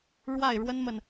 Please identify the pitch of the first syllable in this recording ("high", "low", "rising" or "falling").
falling